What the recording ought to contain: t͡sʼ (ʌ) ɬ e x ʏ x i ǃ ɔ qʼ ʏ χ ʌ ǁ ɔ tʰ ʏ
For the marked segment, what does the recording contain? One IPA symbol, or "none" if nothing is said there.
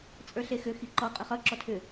ə˞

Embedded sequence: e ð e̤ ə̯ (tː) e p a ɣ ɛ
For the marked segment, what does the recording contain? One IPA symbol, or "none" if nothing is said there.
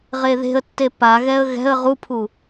tː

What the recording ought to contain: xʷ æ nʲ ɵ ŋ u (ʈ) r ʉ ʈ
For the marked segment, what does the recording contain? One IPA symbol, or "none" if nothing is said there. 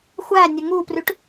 p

